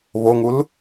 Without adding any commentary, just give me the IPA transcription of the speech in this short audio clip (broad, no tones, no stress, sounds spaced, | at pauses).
β o ŋ u l